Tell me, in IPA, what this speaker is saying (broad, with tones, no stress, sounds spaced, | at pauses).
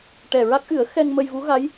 ʈ ɛ˨˩ ɹ a˦˥ k̚ ʔ ɨ˨˩˦ ə̯ x ɛ˧ ŋ m ə˧ j v u˧˥ ɣ a˧˥ j